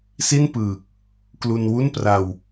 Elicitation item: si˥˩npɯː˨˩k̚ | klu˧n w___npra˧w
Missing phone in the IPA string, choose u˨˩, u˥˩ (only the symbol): u˥˩